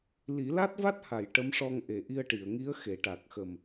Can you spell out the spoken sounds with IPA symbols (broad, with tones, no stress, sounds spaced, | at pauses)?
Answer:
l i˨˩˦ l a˦˥ t̚ v a˦˥ t̚ h a˨˩˨ j ʈ ə˧˥ m ʂ ɔ˧ ŋ ʔ e˨˩˨ ʔ i˧ ə̯ ʈ i˨˩˨ ə̯ ŋ i˧˥ ə̯ x e˨˩˨ ʈ a˨˩ k̚ x ə˨˩ m